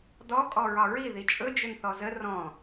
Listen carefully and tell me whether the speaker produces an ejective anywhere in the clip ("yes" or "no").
yes